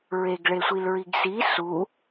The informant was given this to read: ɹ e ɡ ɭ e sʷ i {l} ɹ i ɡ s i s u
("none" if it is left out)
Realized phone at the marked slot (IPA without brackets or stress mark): l